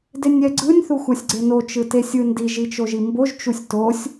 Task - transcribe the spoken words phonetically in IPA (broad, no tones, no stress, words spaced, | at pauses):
denʲɛɡ͡ǀɯnʲ θuxʷasʲɡ͡ǀeno t͡ʃɯtesʲɯndi ʒit͡ʃoʒimboʒ t͡ʃusʲtosʲ